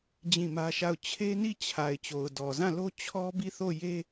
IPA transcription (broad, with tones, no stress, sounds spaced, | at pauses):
d͡ʑ ĩ˦˨ m ä˦ ʃ a˦˨ ʊ̯ t͡ɕʰ e˦ n i˦˨ t͡ɕʰ a˨ ɪ̯ t͡ɕ o˨ ʊ̯ d ɔ˨ z ã˦˨ l o˦ t͡ɕʰ ɔ˦ b i˦˨ θ o˦˨ j e˦